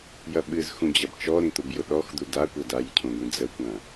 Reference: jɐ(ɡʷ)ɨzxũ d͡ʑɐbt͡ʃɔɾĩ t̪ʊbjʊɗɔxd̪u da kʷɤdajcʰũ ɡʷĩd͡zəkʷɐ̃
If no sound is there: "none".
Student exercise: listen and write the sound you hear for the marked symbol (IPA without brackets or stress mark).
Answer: ɓ